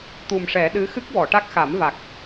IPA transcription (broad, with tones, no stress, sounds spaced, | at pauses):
t̪ u˨˩ m ʂ ɛ˨˩˦ ɗ ɨ˧˥ x ɨ˦˥ k̚ w ɔ˨˩˨ ʈ a˦˥ k̚ x a˨˩˦ m v a˨˩ k̚